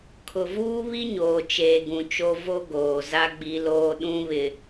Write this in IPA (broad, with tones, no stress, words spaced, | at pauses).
kʰʊ˨vuː˦βi˦ɲoː˨ t͡ʃeː˨ɡũ˨t͡ʃo˦ vo˦ɡoː˨za˦ ɡ͡bi˦loː˦ ɗũ˦βɪ˨